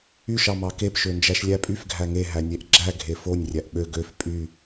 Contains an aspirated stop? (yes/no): no